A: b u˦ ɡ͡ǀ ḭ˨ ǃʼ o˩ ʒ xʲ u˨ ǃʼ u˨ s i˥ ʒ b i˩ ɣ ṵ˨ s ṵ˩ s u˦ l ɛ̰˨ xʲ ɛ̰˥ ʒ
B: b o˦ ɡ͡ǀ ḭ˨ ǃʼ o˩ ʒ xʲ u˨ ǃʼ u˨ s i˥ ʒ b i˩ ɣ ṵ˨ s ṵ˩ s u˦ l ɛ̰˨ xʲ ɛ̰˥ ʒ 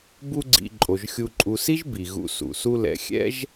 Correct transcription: A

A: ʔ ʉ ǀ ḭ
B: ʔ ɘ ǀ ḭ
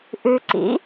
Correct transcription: A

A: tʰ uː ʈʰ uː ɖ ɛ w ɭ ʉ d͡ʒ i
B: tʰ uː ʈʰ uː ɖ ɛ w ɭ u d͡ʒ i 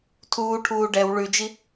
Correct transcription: A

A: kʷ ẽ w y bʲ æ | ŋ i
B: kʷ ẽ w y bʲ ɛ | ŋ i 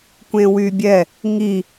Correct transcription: B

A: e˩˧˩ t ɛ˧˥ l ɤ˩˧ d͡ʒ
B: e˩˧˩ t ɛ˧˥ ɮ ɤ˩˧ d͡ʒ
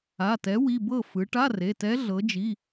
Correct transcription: B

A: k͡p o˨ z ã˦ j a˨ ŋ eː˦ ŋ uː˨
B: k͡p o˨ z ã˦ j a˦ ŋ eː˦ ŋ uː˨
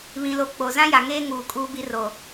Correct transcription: A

